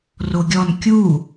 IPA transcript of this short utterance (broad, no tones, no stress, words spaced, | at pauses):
roɡʲɔn kʲu